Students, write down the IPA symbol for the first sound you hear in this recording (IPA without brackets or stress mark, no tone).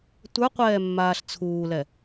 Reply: tʷ